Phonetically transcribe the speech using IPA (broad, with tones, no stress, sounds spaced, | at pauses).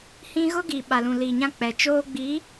h ĩ˦ ɣ ʊ˦ ɡ iː˨ ɓ a˨ l ũ˨ l iː˨ ɲ ã˦ k͡p ɛ˨ t͡ʃ oː˦ ɡ͡b i˨˦